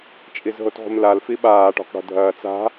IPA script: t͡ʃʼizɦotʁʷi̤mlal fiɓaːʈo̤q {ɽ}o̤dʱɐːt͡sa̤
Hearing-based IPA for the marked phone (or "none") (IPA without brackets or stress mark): ɽ